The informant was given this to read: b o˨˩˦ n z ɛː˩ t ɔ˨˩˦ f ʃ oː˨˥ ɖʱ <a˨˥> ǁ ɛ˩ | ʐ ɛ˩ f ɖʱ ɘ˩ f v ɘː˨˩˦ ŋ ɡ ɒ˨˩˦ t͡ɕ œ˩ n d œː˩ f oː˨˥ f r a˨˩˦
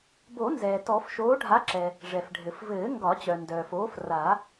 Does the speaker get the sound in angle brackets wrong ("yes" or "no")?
no